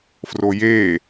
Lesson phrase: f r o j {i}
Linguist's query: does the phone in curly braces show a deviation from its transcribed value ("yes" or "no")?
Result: yes